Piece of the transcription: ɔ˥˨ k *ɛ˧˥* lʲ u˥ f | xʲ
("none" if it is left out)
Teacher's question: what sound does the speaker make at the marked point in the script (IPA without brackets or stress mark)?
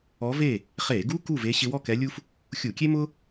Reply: ɛ˧˥